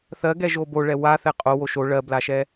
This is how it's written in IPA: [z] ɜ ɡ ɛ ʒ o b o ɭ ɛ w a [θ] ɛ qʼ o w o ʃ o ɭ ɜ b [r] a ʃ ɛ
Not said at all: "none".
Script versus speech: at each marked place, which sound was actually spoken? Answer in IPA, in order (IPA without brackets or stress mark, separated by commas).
θ, θ, l